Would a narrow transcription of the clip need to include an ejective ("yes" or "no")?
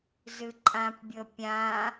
yes